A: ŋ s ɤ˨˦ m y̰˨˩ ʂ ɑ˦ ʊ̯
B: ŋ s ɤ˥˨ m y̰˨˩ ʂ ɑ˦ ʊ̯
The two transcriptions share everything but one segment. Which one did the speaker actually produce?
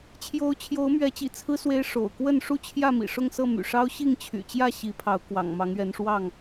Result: B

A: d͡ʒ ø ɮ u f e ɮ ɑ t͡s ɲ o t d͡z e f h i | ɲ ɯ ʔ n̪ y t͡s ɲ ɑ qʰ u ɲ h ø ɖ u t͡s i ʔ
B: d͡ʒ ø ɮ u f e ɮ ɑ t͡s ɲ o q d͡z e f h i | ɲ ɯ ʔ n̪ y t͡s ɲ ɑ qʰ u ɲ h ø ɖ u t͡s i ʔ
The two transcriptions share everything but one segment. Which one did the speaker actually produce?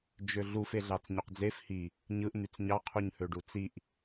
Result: B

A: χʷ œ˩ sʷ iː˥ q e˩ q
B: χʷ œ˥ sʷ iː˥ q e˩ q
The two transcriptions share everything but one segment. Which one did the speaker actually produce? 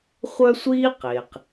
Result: B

